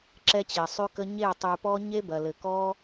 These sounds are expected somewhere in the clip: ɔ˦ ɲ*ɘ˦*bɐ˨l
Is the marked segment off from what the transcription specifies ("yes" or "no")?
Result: yes